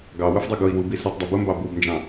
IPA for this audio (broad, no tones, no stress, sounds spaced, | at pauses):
ɡ ɑ w ʊ f dˤ ʌ ɡ ʊ i̯ w u b i s u tˤ dˤ ʌ b ʊ m b ɑ b u b n d͡ʒ ɑ̃